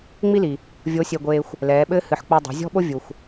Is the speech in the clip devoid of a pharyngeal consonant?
no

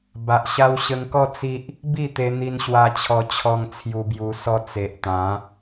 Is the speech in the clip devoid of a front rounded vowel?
yes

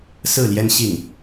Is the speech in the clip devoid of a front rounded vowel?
yes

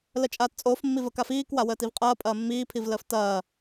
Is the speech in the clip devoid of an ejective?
no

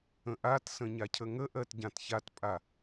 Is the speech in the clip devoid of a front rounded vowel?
yes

